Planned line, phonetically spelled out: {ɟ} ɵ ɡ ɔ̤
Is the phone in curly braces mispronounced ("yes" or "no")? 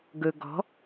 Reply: yes